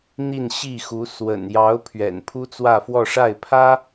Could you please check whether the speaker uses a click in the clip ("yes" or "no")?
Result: no